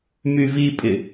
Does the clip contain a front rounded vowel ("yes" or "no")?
yes